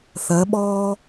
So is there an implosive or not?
yes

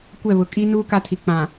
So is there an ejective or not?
yes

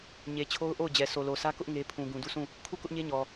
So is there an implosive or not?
no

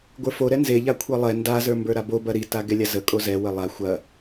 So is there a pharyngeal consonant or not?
no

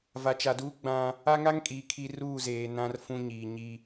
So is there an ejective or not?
yes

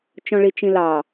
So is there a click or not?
no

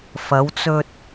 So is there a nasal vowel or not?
no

